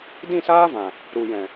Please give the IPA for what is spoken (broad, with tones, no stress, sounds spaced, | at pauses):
d ĩ˦˨ s aː˦ v ã˨ | ɾ u˨ j ɛ̃˨